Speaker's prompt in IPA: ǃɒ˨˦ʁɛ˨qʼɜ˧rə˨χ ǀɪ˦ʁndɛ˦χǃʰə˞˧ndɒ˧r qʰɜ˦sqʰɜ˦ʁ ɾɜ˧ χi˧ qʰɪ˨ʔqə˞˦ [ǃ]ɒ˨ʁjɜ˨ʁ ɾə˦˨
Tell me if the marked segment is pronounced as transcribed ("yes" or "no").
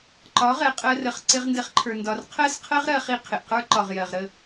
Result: yes